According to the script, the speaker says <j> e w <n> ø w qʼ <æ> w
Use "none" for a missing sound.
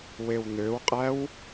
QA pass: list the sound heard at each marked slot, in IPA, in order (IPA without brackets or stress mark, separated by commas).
w, n, æ